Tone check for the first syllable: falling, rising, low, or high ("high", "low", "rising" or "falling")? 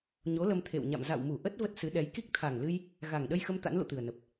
rising